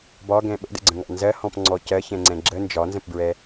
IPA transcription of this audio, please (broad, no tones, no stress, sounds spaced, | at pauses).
b ɒ ɡ ɛ̃ ɓ ə̰ d ə̰ ɡ͡ǀ ə̃ ŋ ɑ̰ n z ɜ h ɔ̃ p ŋ͡ǀ ɔ c ɜ ç ɛ̃ ŋ͡ǀ ɛ̃ ɡ͡ǁ ə n d͡ʒ ɒ n z ə̃ p b ɹ ɛ